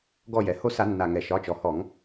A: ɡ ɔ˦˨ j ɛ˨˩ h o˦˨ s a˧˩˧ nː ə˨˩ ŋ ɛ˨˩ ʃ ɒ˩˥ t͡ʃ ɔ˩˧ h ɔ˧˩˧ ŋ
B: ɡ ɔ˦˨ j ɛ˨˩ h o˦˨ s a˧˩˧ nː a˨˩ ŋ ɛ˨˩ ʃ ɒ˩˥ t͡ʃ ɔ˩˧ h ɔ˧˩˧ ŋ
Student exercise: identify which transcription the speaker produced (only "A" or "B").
B